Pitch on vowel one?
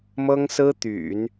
high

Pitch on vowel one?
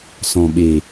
low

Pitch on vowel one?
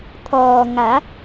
low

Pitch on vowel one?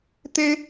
high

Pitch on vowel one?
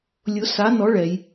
rising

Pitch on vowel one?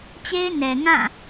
high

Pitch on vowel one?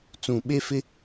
low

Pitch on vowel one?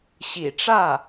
low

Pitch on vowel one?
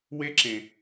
high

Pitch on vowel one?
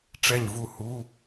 falling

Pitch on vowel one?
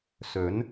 rising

